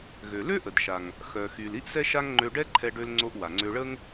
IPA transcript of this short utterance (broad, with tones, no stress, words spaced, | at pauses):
ɣø˩lø˥ʔə˩dʃa˩ŋ | xœ˩xy˩l i˥ʔsɛ˥ʃa˥ŋ ŋ͡ǃø˧ɖɛ˥ǃʰɛ˧ ɖø˧lŋ͡ǀo˧ʔ wa˩ŋ͡ǀø˧ɭə˥ŋ